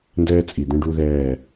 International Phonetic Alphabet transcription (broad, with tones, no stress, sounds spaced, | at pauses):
n d ɛː˦ t͡sʼ i˨ d̪ ɛ̃˦ ɖ u˦ ð ɛː˦˨